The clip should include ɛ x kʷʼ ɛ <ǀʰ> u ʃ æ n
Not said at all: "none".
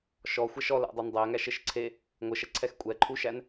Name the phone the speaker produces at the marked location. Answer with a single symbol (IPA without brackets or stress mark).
ǃʰ